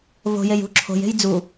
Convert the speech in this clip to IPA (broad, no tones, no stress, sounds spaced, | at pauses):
v o̤ j e j ṳ ǁʰ o̤ j e̤ j d͡z u